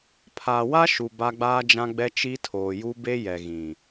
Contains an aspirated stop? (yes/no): yes